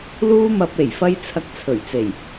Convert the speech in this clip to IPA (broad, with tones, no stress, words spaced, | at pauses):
luː˥mɐ˧p̚ e˨˩jfɐ˧j t͡sʰɐ˧k̚t͡sʰɵ˨˩ɥt͡se˨˩j